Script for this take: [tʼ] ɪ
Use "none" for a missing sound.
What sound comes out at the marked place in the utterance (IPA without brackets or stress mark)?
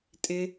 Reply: tʼ